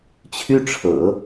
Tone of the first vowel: high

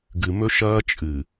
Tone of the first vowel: low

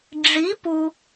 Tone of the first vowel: rising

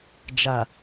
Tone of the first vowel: low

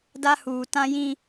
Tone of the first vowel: high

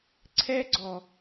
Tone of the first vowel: high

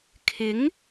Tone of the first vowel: rising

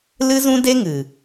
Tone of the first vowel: high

